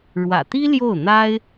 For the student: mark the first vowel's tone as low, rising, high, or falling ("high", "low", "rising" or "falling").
low